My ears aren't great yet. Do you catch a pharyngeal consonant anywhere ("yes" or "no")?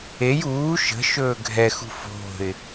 no